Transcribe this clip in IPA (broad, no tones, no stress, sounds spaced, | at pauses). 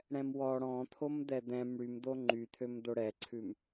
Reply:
ɽ ɛ̃ m w ɔ ɽ ɔ̃ t̪ʰ o m d̪ ɛ d̪ ɛ̃ m ɽ y m d̪ o ŋ͡ǃ y t̪ʰ ø m d̪ o ɽ ɛ ǀʰ ʉ m